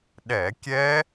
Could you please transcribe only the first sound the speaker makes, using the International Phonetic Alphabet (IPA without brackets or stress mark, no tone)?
ɗ